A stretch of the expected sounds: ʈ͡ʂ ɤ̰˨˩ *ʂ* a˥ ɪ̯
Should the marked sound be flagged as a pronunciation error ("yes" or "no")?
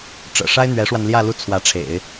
no